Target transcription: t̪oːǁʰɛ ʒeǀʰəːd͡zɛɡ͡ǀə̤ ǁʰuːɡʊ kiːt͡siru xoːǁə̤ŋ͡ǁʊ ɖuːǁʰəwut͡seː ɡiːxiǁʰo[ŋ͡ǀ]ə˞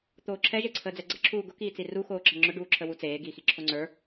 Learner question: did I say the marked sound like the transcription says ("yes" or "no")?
yes